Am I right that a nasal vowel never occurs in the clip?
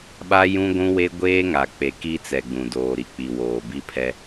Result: no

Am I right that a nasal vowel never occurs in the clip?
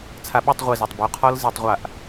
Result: yes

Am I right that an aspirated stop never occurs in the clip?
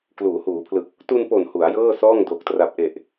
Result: no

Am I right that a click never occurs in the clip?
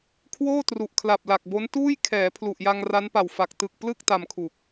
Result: yes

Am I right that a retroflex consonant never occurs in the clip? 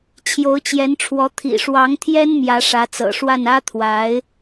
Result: no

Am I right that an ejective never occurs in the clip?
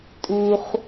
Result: no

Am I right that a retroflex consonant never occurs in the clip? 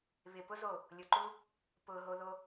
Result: yes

